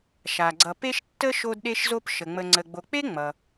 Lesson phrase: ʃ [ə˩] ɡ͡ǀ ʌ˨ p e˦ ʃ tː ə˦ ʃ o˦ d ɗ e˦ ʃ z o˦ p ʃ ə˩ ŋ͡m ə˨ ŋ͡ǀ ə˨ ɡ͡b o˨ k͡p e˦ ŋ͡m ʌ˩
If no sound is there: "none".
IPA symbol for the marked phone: a˩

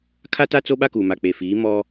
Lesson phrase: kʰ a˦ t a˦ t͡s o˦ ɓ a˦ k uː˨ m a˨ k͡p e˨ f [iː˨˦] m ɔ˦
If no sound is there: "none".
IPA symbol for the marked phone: iː˨˦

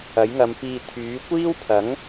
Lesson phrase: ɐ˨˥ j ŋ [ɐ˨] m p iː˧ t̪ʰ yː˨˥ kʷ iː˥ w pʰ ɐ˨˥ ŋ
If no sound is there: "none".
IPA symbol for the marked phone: ɐ˨˧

